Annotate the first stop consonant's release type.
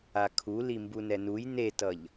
aspirated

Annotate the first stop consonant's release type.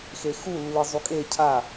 ejective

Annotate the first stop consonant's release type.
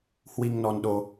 implosive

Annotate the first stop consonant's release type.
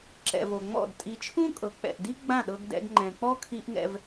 click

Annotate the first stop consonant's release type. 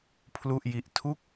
aspirated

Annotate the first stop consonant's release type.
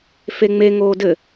plain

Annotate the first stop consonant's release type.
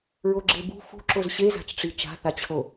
click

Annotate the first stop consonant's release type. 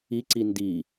click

